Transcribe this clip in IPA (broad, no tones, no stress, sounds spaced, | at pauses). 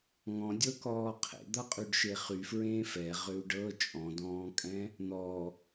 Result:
ŋ ɔ̃ dʲ ɤ k ɔː qʰ ḛ d̪ ʌ qʼ y ɖ ʃ e χ y f ɹ ẽː f ɛ ʁ ʏ u̯ ɖ ɤ t͡ʃʼ ɔ̃ d ɔ̃ː kʼ ɛ̃ | n̪ ɔ